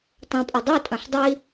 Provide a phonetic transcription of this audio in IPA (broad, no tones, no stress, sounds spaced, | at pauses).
tˤ ɐ̃ pʼ ɘ dˤ e tʼ ɐ̃ ħ dˤ i